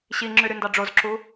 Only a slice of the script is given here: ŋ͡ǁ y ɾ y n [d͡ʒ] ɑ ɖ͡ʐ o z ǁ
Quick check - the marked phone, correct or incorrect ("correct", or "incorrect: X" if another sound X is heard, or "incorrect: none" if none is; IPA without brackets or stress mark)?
incorrect: d